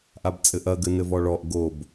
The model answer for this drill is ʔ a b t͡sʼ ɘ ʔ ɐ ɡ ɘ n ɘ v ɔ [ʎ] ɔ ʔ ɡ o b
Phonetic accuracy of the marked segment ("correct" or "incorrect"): incorrect